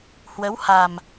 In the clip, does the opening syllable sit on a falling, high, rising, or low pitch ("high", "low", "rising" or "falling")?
rising